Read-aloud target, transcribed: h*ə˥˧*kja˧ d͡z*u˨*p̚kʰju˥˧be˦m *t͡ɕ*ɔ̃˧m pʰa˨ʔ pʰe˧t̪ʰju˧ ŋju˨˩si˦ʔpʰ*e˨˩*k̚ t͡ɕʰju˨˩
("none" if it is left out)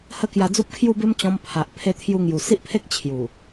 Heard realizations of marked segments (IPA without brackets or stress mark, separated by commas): ə˥˧, u˦, t͡ɕ, e˦